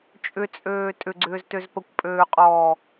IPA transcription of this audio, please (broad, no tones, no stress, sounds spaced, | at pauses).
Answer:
t͡ʃʼ ʏ t͡sʼ øː tʼ ʏ ɡ͡ǀ ʏː z t ø z p ə kʷ pʼ øː qʼ ɔː